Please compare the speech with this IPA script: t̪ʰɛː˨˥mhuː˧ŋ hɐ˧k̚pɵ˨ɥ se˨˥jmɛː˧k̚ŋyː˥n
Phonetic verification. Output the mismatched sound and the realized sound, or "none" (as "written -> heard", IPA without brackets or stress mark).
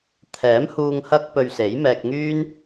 none